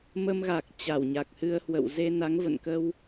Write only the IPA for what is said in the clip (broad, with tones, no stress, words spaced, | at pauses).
mə˧mɣa˨˩k̚ t͡ɕa˧˩wɲa˨˩k̚hɨ˧ə̯hwə̰˧˨w ze˧na˨˦ŋvə̰˧˨nkə˧w